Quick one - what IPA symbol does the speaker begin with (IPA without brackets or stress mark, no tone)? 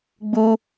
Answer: ɡ͡b